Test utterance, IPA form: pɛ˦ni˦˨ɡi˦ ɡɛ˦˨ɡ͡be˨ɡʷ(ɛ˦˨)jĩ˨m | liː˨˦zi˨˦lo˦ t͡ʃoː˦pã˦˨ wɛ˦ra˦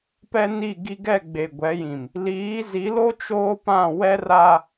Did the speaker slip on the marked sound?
yes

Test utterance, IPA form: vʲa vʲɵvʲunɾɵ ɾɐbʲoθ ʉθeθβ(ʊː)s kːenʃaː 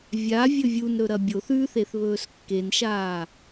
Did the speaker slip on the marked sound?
yes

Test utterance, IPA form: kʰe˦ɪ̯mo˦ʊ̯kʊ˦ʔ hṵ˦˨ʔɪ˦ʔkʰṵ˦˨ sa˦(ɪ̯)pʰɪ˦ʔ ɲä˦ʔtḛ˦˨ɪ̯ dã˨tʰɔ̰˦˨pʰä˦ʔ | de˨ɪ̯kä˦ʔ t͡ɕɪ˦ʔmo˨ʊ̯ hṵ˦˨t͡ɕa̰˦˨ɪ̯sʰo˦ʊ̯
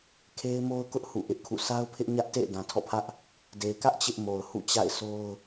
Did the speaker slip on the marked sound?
yes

